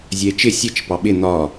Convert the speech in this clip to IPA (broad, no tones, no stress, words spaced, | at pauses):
zʲɜe̯t͡ʃɪ sʲət͡ʃ pɑɓɪ n̪ɒ